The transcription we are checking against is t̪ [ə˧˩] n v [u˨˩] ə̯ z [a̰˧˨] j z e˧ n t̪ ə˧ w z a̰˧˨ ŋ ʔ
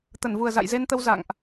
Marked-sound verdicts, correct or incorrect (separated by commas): correct, correct, correct